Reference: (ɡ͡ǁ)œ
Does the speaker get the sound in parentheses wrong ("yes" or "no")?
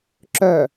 yes